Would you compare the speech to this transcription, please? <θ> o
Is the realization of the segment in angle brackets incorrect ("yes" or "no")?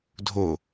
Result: yes